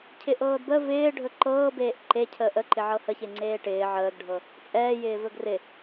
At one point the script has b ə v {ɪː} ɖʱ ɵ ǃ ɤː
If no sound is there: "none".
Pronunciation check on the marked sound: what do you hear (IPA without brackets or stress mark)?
ɪː